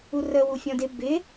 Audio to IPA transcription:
u r ə w u fʲ ɔ̃ d ɪ b ɪ

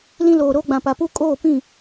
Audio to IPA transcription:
l ĩ˦ l oː˨ ɾ oː˦ ɡ͡b ã˨ p a˨ p u˦ kʼ oː˦˨ p ĩ˦˨

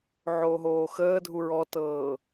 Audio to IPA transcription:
ʕ oː ɦ oː x əː dʱ u ɹ ɔ t ɤː

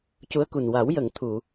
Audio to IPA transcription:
c u˧˥ ə̯ k u˨˩ n w a˨˩˦ w j ə˨˩˨ ŋ t̪ʰ u˨˩˨

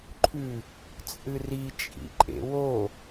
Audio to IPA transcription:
ǃʰ ʉ | t͡sʼ ɨ r i t͡ʃʼ ḭ ǃʼ ḛ w o

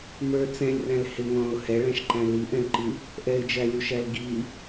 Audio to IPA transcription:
m ə˞ t͡s ɛ̃ lʲ r æ̃ l h ɪ ŋ ɔ̃ː ʊ̯ h ɛ ɭ æ̃ ʃ ǃ æ̃ l i ʔ ɛ̃ l ǃ i | ʔ ɛ ɪ̯ d͡ʒ æ lʲ u ʃ æ l ɡ i

